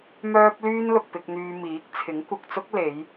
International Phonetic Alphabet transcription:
m œː˥ p̚ l yː˥ n l ʊ˨ k̚ p ɪ˧ k̚ n̪ yː˧ m iː˨˥ k̚ t͡sʰ ɪ˨˥ ŋ kʷ ɐ˨ k̚ t͡s ʊ˥ k̚ l e˨˧ j

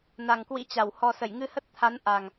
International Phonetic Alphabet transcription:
n a˨˩ ŋ k w ḭ˧˥ t͡ɕ a˧˩ w h ɔ˧ s ə˧˩ j ŋ ɨ˧ h ə˦˥ t̚ t̪ʰ a˨˦ n ʔ a˨˩ ŋ

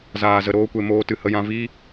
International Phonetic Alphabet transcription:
z aː˨ z ə˨ ɾ oː˧ kʷ e˨ m oː˧ t ɨ˧ h ə˧ j ã˧ v iː˦

